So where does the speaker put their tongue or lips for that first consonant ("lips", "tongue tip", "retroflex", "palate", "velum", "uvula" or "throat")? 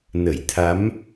tongue tip